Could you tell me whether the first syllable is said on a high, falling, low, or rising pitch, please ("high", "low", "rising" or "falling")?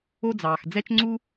high